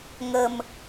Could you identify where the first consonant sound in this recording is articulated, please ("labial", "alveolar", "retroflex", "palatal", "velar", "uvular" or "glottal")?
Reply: velar